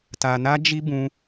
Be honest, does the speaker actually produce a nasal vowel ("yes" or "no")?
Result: yes